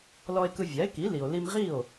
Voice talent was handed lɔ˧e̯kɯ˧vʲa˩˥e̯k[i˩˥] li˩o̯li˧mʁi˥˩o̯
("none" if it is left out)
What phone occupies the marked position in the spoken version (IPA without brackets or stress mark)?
i˩˥